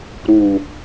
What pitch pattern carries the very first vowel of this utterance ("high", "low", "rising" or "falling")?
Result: low